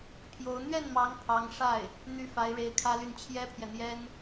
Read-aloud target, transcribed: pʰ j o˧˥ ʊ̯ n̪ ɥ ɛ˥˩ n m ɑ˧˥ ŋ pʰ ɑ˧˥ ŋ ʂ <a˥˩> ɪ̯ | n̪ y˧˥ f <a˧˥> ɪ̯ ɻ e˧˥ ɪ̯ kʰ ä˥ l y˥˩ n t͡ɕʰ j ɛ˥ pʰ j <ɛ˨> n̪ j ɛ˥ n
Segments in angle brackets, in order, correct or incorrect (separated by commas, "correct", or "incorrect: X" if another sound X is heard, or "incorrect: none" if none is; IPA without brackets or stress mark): correct, correct, correct